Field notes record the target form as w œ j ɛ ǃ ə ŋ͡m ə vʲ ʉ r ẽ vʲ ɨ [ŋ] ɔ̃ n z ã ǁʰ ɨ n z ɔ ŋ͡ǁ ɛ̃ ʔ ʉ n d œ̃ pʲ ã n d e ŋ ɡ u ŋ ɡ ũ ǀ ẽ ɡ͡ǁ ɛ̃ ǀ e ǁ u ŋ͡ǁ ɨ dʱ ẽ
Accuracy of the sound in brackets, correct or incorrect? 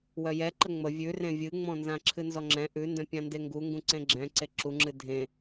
incorrect